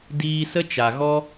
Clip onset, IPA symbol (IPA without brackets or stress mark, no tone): d